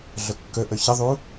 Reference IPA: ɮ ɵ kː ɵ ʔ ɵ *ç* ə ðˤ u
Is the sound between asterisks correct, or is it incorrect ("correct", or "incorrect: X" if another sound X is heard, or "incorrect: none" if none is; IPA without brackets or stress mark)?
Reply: correct